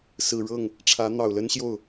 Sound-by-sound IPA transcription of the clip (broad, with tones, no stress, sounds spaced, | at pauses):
s ɹ̩˨˩ ɻ ɤ˥˩ ŋ | ʈ͡ʂʰ ä˧˥ n̪ ɑ˨˩ ʊ̯ l ə˥ n ɕ j o˥˩ ʊ̯